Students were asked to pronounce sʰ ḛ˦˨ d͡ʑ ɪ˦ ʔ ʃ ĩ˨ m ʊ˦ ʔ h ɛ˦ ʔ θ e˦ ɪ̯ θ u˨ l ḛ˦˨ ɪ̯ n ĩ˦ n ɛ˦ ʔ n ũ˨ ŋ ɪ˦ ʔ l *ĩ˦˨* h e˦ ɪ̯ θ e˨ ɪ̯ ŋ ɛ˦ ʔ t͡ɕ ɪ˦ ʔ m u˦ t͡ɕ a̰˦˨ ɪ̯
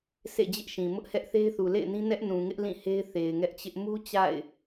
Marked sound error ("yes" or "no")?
no